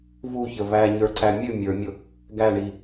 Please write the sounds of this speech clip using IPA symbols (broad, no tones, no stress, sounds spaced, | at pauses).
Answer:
v u ç ə v æ ɲ ə˞ ǀ æ mʲ ɨ mʲ ə˞ mʲ ʊ | ɡ æ ɳ i